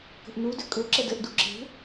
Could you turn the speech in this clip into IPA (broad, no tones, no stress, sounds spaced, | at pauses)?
k ə̤ ʔ n u d ʏ kʼ ɵ ǁ ə d ə ʔ d u ǁ e̤